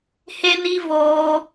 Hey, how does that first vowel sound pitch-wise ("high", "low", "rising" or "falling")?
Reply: high